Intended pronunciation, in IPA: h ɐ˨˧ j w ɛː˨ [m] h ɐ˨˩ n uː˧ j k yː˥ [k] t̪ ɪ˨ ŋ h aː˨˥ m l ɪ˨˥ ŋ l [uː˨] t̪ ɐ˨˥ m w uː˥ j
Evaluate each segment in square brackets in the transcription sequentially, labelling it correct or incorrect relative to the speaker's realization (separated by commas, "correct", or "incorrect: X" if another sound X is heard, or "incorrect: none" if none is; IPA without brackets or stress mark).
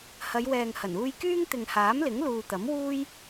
incorrect: ŋ, incorrect: ŋ, correct